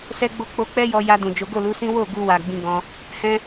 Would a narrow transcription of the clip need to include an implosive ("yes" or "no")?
no